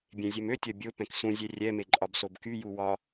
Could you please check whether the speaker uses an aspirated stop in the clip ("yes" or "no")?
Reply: no